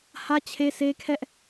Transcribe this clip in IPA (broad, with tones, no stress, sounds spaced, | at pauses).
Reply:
h ä˦ t͡ɕʰ e˦ sʰ e˦ kʰ ɛ˦ ʔ